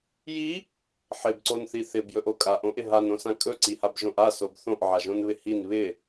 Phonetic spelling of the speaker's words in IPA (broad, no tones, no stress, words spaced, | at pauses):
ji | ħɪbǀonθi θɪbjɵʔo kʼaʔõʔɪ ɦanõsã kʼɵǀihabʒõʔ asob θõʔʕaʒõnβɪ hin βɪ